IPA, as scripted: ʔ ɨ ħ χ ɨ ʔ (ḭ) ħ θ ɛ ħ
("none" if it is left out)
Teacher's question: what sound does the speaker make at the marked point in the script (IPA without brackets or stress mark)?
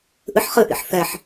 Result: ḭ